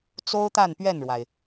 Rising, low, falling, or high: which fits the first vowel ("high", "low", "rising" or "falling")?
high